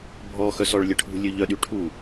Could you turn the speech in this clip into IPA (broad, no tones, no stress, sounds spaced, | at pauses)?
bʱ ɔ x œ s ɔ ɭ lʲ ə ʈʰ ṳ lʲ ø ʎ œ ɗ y ʈʰ u